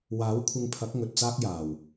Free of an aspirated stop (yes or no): no